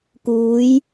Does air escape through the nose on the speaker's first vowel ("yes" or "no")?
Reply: no